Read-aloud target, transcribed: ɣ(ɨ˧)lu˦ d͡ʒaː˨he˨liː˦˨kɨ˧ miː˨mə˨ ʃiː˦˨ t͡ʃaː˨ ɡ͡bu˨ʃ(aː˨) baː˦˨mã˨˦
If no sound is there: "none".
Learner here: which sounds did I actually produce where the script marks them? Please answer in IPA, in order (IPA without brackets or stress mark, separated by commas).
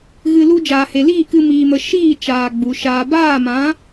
ɨ˧, aː˧